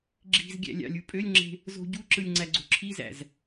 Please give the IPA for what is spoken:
ɡ͡ǁi̤z ɡʲæ̰lʲɑ̰lʲu pʼølʲŋ͡ǁe̤ | zo̤ɟuǁɯlʲ ŋ͡ǀæɡ͡ǀo̤ǁʰizæ̰z

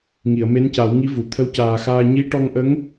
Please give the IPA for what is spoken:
ŋi˨˩˨ə̯me˧˥nca˨˩˦wŋi˧˥ vu˨˩˨ t̪ʰə˧˥wcaː˨˩xaː˧ ɲi˧˥ʈɔ˧ŋʔə˧˥ŋ

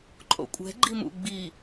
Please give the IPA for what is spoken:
ǃʼo̰kʷʼɛ̤ ɡ͡ǃimṵ ɡ͡bi

